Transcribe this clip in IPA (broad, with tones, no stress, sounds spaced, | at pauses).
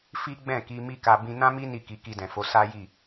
f i˦ ɡ͡b ɛ̃˦˨ k i˧ m i˦ k a˧ b ĩ˧ n ã˦ m i˦ n i˦˨ k i˨˦ k i˧ d ɛ̃˨ f o˨˦ s a˦ j i˦˨